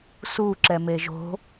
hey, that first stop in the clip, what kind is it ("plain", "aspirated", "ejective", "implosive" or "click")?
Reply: click